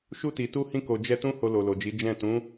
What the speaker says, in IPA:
ʃu˧ti˨ tu˧hĩ˧ko˨ d͡ʒɛ˧tũ˦ ho˧lo˨lo˨d͡ʒi˨˦ d͡ʒɛ̃˦˨ tũ˨˦

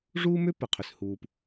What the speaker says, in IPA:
ʐuː˦mʏ˦ pə˨qʰʏ˨s huː˨p

